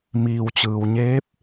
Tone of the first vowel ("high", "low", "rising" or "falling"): low